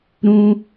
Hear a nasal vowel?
yes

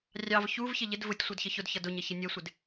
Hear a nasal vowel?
no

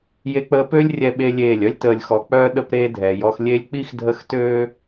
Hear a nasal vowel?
no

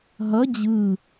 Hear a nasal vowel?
no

